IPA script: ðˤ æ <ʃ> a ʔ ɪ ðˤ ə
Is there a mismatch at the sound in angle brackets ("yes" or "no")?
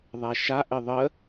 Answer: no